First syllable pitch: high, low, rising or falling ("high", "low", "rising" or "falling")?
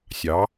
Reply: rising